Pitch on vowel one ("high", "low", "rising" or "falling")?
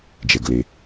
low